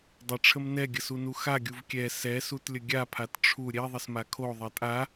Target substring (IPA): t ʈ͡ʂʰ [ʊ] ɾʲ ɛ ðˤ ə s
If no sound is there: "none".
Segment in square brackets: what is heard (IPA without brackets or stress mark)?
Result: u